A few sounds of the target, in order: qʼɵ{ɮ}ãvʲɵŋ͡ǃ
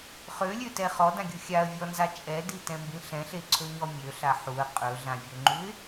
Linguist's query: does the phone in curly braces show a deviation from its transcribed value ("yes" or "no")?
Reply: no